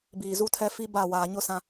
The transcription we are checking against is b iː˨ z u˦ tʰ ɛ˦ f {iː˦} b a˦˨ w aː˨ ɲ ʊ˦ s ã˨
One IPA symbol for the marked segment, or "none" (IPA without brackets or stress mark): i˦